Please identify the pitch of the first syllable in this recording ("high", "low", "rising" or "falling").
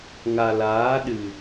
low